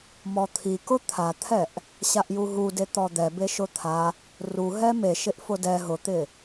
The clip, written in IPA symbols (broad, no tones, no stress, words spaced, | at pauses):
mɔt̪ʰikʊ t̪ʰat̪ʰɛʔ | ɕaʔjuɦude t̪ɔd̪ɛ beʃʊt̪ʰa | ruɦɛ meʃɪʔ fʊdɛ ɦʊt̪ɪ